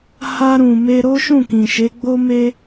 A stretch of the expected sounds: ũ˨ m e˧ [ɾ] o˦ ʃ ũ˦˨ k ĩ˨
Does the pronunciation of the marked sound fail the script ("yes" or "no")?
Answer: no